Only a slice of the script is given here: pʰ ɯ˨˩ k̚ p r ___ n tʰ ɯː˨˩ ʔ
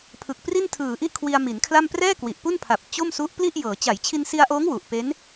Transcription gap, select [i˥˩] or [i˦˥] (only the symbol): i˥˩